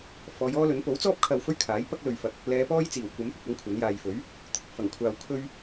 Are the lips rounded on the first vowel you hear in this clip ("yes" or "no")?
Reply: yes